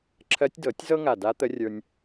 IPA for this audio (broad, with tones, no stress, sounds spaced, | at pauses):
ǁʰ ɜ˧˥ tʲ d ɤ˨˩˦ tʲ z ɤ˥ ŋ a˧˩ d a˧˥ t̪ ə˧˥ rʲ ə˞˧ nʲ